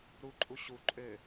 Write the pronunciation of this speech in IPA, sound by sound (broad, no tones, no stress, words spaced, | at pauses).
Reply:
ɾuǃʼu ɕu ǃʼø